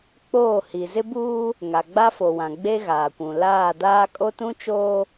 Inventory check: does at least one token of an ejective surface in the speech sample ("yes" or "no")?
yes